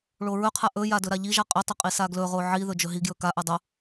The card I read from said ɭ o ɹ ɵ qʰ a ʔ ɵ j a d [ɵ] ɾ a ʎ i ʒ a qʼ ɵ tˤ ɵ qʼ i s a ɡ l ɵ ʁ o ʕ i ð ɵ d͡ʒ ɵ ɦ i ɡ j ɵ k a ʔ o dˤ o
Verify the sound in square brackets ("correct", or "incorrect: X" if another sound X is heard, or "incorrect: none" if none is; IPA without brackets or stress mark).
correct